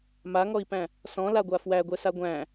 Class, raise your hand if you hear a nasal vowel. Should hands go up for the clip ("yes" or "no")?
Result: yes